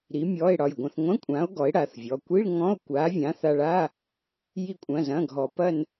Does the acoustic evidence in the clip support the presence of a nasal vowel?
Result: yes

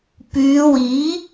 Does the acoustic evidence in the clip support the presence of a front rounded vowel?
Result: yes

